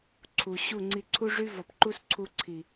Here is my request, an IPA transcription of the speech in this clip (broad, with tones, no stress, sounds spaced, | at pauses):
ǀʰ u˨ ɕ u˦˨ ŋ͡ǀ i˧ ǀʰ u˦ ʐ y˦ v ɔ˨ p ǃ u˦ s ǀʰ u˧ ǀʰ i˨